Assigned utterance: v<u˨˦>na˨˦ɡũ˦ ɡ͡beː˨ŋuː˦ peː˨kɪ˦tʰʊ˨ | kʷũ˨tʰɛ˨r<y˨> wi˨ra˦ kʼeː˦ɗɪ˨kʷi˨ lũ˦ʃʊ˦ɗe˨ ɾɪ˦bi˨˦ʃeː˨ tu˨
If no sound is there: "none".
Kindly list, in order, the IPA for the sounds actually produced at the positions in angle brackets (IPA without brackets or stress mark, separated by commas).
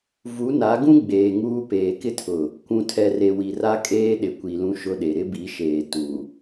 u˨˦, e˨